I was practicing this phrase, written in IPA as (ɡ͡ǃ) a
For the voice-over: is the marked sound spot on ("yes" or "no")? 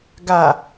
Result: no